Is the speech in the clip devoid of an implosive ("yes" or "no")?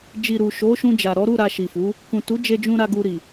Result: yes